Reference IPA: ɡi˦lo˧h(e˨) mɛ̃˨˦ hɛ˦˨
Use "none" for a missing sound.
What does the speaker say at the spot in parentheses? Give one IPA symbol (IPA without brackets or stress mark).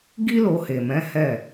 e˨